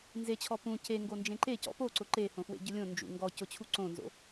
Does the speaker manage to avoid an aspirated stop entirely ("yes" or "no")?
no